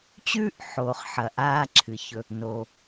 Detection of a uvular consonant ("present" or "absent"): present